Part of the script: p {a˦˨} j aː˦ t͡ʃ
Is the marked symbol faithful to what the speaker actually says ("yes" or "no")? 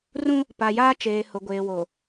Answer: no